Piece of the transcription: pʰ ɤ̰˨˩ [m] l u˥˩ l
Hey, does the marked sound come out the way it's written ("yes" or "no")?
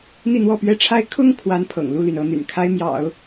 no